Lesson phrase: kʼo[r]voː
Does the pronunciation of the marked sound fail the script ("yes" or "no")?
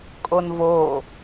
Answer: yes